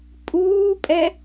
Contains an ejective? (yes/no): yes